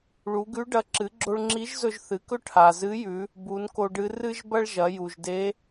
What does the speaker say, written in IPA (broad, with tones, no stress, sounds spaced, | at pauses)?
ɭ u˩˧ ɡ ʉ˧˥ ɖ ɐ˧˥ ǁ ɨ˩˧ ɡ͡ǁ o˧ ɭ ŋ͡ǁ i˧˥ ʒ z ɵ˧ ʒ θ ɨ˩˧ k ɵ˥ ʈʰ a˩ z ɨ˧˥ j ʉ˩˧ | b u˩˧ n k o˧ ɖ ɨ˧˥ r ɨ˥ ʒ b ɐ˥ ɭ ʒ ɐ˩˧ j u˩ ʒ d e˧˥